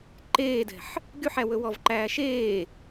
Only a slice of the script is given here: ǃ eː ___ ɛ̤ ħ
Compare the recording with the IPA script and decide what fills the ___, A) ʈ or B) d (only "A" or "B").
B